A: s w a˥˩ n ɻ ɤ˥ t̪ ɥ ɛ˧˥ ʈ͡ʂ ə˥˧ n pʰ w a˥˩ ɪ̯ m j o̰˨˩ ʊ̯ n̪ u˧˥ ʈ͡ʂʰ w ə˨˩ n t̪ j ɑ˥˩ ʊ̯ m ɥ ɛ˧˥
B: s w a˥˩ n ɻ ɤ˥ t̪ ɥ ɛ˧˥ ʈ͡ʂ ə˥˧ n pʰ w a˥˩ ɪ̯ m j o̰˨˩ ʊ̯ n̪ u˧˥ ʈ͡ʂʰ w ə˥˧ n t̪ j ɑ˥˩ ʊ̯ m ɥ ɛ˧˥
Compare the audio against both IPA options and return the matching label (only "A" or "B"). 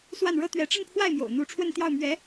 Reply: B